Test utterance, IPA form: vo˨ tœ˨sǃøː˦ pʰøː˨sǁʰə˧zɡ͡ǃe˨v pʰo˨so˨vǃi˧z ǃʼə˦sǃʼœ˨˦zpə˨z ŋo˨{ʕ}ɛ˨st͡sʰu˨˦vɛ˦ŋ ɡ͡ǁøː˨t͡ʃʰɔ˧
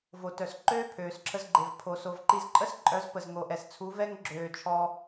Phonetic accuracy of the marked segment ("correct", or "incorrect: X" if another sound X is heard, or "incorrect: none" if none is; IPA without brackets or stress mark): incorrect: ʔ